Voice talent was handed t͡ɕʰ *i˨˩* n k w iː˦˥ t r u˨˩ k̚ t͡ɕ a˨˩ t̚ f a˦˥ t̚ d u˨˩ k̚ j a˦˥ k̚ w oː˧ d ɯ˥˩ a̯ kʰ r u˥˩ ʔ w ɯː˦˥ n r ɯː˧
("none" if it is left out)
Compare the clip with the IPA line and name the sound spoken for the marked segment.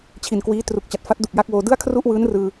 i˨˩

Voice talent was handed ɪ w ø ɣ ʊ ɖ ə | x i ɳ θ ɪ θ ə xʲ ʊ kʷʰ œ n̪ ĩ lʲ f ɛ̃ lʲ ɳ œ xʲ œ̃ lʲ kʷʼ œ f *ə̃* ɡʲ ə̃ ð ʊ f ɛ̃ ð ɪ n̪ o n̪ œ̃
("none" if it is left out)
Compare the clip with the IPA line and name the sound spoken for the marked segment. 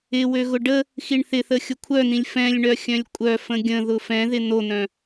ə̃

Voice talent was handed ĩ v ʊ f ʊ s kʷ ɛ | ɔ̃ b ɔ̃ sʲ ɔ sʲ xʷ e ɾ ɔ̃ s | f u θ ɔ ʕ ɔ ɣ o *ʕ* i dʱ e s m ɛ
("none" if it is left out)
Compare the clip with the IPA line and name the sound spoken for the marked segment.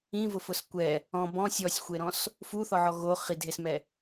χ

